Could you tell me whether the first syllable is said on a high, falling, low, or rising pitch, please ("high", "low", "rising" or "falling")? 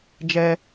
high